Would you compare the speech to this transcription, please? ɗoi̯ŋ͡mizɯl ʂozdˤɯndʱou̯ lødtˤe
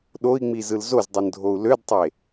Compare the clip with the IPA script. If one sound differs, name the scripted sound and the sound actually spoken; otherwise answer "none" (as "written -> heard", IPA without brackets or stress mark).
ʂ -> z